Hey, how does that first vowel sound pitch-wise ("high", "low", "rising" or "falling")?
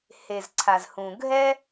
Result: low